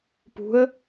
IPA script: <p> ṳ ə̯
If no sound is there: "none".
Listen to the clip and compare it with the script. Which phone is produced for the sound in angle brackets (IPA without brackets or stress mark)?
p